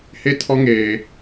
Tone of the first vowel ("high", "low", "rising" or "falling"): high